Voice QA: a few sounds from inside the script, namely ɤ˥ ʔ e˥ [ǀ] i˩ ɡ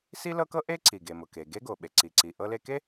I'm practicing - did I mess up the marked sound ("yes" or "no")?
no